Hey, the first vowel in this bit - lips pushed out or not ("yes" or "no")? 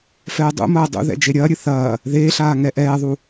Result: no